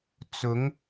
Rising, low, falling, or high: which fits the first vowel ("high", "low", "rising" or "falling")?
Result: rising